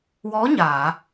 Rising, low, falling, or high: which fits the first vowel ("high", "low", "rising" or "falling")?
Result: rising